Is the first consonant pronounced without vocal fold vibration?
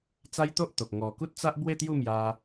yes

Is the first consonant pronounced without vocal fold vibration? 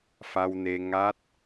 yes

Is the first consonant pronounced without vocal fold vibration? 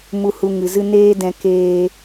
no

